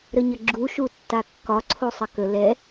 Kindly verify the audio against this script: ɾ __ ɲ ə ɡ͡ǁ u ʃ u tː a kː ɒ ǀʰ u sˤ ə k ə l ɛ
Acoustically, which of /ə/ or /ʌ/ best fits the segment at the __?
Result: ə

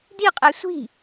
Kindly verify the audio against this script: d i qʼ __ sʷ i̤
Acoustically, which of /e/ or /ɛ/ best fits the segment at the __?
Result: ɛ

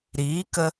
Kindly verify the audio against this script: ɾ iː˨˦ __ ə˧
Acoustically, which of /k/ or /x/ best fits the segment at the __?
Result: k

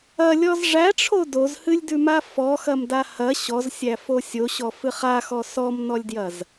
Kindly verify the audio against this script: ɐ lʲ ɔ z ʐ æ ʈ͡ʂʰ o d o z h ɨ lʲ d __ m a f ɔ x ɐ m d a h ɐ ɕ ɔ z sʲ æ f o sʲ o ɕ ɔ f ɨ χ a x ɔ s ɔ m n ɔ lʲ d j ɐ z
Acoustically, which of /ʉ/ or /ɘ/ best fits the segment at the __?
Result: ʉ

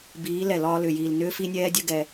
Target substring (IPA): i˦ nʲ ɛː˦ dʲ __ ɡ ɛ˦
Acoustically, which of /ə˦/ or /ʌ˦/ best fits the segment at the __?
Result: ə˦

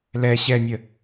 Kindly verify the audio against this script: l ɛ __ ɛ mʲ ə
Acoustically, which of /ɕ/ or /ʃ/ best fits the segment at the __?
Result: ɕ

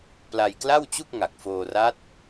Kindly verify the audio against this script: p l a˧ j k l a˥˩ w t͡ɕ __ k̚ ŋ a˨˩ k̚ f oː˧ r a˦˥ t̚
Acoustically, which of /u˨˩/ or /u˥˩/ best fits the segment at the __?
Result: u˥˩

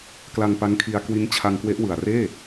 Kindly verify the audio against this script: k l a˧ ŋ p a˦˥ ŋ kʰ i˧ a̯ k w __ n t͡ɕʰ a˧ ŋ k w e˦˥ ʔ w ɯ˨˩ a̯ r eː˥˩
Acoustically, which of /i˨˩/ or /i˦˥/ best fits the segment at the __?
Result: i˦˥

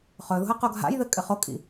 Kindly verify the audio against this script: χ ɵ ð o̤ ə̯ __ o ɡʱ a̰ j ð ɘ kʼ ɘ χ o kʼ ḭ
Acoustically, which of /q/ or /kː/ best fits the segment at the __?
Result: q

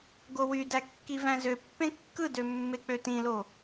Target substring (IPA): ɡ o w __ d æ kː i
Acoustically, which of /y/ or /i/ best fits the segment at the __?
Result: y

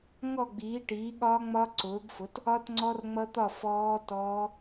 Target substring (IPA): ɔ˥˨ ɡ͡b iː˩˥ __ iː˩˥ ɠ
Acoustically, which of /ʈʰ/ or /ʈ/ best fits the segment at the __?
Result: ʈ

